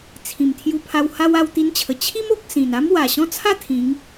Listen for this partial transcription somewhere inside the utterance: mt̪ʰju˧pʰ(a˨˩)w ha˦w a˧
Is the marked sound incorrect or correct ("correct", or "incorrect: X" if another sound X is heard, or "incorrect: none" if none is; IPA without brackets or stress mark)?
incorrect: a˧